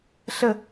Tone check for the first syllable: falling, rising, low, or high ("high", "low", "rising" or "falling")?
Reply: falling